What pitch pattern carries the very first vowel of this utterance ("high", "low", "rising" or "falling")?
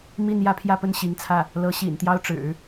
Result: falling